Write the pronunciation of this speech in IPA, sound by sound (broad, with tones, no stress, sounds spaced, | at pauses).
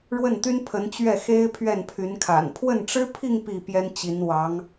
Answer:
ɻ w ə˥˩ n t̪ y˥ n pʰ ə˧˥ n t͡ɕ ɥ ɛ˥˩ x e˥ ɪ̯ pʰ ɥ ɛ˥˩ n pʰ y˧˥ n kʰ a̰˨˩ n pʰ w ə˥˩ n ʈ͡ʂ ɻ̩˥ pʰ i˥˧ ŋ p i˥˩ p j ɛ˥ n t͡ɕ i˧˥ n w ɑ˧˥ ŋ